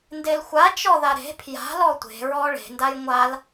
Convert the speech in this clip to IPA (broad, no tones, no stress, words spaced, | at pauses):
ndelxʷat͡ʃɔ ðaɾe̤ pʰja̤lɔ tʷe̤ɹɔ ɭe̤ ndajŋʷal